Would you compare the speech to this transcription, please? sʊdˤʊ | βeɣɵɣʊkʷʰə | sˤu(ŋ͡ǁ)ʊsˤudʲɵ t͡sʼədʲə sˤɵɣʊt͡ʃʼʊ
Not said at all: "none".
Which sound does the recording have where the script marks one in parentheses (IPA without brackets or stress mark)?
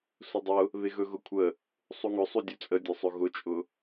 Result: ŋ